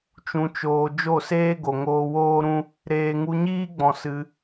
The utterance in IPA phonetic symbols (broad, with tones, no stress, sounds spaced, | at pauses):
t͡ʃ ũ˧ t͡ʃ oː˧ d͡ʒ o˦˨ s eː˦ ɡ o˨ ŋ oː˧ w oː˦ ɾ ũ˦ | ɾ eː˨ ŋ u˧ ɲ iː˦ ɡ͡b ɔ̃˧ s ɨ˧